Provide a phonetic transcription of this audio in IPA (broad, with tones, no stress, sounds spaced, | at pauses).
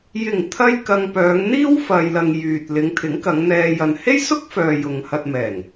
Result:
j ɪ˨˩ ŋ t̪ʰ ɐ˧ j k ɐ˨ ŋ p œː˨˧ ŋ n̪ iː˥ w f ɐ˨ j l ɐ˨ ŋ j yː˨ t̚ l ɪ˨˧ ŋ t̪ʰ ɪ˨˥ ŋ k ɐ˨˧ ŋ n̪ ɛː˧ j ɐ˨ n h e˥ j s ʊ˥ k̚ f œː˨ j ʊ˨ ŋ h ɐ˧ t̚ m ɛː˨˩ ŋ